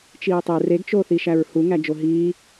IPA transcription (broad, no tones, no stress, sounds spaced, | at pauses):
t͡ʃ iː tˤ e r e ɡ t͡ʃ oː θ i ʃ æ ɹ h u ŋ æ d͡ʒ o ɦ iː